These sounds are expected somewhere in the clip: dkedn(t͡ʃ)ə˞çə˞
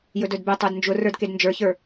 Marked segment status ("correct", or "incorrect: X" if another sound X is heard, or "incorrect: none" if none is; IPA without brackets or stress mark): incorrect: d͡ʒ